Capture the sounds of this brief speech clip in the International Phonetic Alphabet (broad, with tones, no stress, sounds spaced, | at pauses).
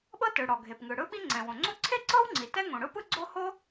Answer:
ɓ ɤ˥ t ɯ˩ ɽ ɔ˩ ɡʱ e˩ p ŋ ɯ˩ ɽ ɯ˥ ɓ i˥ ŋ͡ǀ ɛ̃˩ w õ˩ ŋ͡ǀ o˥ ǀʰ e˥ ǀ ɤ˥ w ŋ͡ǀ i˩ t ɛ˥ ŋ õ˩ ɽ ɯ˥ p ɯ˥ ɡ͡ǀ o˥ h o˥